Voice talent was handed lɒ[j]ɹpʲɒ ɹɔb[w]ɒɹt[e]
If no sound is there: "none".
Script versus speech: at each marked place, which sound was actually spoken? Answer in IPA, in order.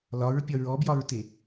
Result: none, j, e

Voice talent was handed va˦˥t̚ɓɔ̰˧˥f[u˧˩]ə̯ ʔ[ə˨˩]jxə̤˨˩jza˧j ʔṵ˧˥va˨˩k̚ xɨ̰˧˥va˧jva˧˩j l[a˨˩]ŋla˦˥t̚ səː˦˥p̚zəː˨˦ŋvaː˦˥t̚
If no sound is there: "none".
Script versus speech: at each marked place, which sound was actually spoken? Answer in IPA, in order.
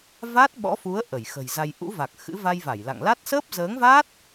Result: u˨˦, ə˧˩, a̰˧˨

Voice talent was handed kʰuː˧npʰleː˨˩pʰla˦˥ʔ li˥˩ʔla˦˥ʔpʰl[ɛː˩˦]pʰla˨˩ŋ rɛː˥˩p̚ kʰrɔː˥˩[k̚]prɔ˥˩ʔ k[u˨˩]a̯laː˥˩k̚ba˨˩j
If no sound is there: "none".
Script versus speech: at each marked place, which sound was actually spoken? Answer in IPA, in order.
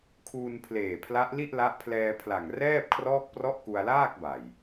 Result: ɛː˧, k̚, u˧

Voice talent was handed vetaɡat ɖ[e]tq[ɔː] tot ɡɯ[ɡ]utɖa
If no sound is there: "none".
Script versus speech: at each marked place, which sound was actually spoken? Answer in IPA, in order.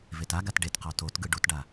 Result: e, ɔ, ɖ

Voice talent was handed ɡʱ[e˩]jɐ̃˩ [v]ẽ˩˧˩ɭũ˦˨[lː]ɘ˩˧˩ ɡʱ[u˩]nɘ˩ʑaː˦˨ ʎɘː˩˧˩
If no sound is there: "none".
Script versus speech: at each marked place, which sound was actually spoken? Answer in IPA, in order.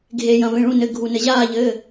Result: e˩, v, n, u˩

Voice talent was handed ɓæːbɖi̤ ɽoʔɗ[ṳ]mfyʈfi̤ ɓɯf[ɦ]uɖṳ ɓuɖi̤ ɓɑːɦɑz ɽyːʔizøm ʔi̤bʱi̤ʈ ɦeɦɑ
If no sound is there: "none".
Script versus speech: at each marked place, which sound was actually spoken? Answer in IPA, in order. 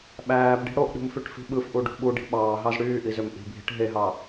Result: ṳ, ʔ

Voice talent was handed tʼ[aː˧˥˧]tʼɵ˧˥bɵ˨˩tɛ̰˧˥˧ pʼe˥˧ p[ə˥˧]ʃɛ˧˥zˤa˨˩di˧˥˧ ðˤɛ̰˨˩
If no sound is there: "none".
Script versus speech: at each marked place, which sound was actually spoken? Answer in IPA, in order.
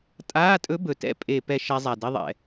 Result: aː˧˥˧, ɛ˥˧

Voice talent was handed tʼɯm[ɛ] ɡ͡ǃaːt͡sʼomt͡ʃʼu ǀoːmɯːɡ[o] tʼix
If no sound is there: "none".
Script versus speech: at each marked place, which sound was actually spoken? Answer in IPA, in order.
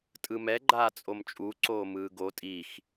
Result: ɛ, o

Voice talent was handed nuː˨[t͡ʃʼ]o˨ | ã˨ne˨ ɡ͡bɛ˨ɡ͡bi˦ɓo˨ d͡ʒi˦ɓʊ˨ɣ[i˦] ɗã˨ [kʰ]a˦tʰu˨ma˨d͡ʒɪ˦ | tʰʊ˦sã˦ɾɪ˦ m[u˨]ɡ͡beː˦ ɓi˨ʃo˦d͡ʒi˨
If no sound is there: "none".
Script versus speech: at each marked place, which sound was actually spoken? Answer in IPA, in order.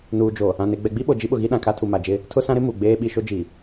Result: d͡ʒ, i˦, kʰ, u˨

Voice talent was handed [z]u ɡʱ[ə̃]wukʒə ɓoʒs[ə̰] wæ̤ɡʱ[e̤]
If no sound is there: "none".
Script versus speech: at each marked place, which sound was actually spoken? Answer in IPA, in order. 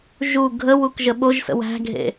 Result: ʒ, ə, ə̰, ḛ

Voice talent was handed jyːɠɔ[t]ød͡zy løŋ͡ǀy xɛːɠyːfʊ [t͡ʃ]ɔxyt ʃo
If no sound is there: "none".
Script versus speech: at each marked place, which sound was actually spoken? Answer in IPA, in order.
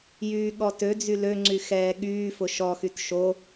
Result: t, ʃ

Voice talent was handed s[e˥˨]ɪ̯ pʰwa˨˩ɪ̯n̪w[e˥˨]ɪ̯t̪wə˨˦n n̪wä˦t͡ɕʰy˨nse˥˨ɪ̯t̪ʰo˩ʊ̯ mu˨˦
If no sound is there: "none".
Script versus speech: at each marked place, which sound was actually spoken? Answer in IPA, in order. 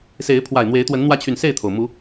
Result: e˨˦, e˨˦

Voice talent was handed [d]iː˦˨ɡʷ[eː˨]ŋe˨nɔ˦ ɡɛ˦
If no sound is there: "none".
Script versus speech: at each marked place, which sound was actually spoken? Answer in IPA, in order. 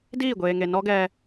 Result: d, eː˨

